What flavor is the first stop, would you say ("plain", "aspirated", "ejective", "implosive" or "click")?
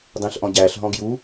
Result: plain